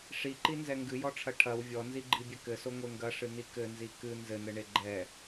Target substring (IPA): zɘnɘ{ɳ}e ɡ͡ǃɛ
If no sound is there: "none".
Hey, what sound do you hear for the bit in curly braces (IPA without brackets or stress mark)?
ɳ